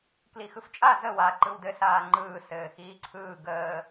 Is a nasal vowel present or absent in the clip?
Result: absent